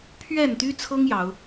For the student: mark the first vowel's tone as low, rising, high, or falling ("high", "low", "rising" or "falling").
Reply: falling